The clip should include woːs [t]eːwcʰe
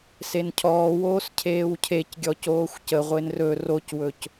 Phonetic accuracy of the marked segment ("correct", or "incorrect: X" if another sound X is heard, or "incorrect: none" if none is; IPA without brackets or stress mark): incorrect: cʰ